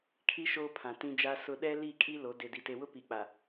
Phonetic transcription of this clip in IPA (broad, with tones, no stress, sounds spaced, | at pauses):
kʰ i˦ ʃ oː˦ pʰ ã˨ t ĩ˦ d͡ʒ a˦ s ʊ˦ ɗ ɛ˦ l i˦˨ kʼ i˦ l o˨˦ d e˨ d i˨ t e˨ w ʊ˦ p i˨ k͡p a˨